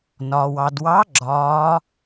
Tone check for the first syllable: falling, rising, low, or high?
low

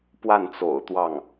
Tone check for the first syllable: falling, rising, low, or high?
falling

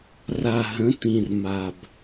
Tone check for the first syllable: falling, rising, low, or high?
low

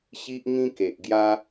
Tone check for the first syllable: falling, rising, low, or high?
high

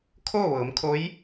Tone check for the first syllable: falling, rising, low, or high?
falling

